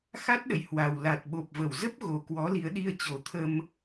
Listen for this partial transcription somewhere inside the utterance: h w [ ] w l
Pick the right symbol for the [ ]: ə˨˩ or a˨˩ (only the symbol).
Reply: a˨˩